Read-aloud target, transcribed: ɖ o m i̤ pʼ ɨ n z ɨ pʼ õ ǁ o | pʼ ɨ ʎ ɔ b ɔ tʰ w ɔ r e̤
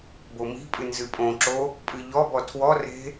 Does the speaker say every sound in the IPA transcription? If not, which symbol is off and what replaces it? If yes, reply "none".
ɖ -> b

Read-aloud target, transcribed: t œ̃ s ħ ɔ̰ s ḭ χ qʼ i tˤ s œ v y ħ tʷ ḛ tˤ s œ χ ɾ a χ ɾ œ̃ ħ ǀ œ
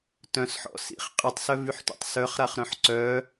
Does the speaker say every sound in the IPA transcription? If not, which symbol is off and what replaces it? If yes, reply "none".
none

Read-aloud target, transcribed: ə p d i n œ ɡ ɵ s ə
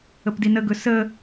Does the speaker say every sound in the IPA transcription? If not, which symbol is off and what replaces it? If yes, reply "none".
œ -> ə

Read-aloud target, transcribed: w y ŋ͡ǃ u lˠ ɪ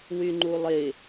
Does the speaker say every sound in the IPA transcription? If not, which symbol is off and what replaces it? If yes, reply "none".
none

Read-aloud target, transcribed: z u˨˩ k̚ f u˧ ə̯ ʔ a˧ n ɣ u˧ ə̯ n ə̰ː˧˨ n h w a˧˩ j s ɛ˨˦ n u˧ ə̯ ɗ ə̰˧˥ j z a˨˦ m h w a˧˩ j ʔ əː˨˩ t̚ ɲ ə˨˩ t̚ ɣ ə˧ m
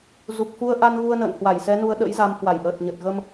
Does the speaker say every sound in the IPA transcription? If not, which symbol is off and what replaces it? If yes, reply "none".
none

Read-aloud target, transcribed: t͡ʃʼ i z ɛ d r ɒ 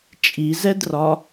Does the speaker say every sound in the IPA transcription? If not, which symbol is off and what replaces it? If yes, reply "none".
none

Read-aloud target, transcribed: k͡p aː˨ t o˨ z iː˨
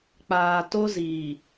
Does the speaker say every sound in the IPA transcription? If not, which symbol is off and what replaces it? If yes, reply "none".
o˨ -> o˦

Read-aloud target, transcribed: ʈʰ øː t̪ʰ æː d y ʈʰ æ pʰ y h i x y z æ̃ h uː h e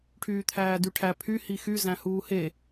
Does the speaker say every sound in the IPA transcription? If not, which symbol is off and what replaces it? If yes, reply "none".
øː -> yː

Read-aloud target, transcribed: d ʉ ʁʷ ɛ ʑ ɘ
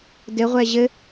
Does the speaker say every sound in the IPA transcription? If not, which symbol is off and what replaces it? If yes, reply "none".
ʉ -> ɘ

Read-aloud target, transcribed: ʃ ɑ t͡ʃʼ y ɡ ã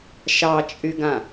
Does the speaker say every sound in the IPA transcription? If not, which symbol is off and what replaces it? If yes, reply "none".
none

